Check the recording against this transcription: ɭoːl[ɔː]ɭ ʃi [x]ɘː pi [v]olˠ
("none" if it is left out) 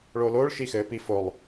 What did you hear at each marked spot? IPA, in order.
oː, x, f

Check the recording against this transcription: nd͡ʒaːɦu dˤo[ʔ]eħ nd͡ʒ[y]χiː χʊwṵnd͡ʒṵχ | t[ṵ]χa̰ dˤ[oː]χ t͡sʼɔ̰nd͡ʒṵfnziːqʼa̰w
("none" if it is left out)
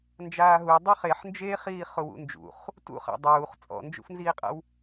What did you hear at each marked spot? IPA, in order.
χ, e, ṵ, uː

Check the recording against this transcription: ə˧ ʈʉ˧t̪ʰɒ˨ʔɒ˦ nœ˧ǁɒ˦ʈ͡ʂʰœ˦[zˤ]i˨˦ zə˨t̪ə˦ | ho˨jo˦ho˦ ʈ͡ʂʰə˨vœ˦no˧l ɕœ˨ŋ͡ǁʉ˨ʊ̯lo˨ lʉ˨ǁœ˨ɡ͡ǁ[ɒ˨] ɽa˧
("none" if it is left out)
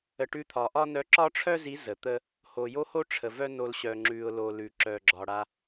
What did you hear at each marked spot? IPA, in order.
z, ɒ˨

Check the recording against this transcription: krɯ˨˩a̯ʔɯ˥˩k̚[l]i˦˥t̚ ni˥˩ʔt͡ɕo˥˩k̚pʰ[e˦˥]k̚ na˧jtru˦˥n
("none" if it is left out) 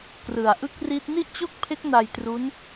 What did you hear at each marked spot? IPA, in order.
r, e˦˥

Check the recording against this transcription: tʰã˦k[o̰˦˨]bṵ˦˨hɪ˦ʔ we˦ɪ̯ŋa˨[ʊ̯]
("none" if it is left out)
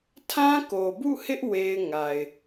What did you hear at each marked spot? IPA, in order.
o˨, ɪ̯

